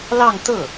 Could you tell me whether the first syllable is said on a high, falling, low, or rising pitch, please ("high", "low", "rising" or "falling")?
falling